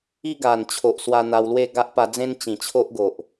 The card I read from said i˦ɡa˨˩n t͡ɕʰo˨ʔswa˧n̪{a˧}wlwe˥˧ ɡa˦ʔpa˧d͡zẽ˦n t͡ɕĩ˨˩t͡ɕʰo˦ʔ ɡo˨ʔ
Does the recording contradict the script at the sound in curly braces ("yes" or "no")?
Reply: no